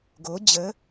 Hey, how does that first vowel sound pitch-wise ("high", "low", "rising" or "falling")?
rising